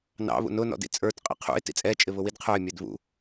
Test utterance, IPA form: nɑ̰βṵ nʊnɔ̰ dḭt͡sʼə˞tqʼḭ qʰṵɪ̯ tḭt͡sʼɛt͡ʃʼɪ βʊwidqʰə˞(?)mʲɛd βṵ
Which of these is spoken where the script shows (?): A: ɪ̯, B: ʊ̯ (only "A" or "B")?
A